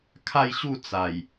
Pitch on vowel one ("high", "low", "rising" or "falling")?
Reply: falling